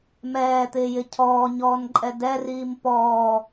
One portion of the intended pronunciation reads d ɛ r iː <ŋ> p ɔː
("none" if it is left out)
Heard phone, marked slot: m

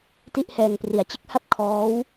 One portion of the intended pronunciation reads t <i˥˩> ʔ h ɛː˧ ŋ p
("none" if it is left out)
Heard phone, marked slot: i˥˩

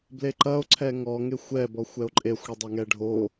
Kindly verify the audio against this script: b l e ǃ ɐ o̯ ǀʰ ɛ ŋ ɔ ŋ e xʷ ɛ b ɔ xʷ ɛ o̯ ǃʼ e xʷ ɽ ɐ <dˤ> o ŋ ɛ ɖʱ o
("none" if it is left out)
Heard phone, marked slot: dˤ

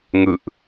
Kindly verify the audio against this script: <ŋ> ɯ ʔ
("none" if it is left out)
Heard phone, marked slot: ŋ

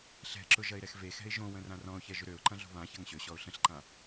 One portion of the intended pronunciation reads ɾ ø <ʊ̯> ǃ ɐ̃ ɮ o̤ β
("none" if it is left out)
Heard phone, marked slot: ʊ̯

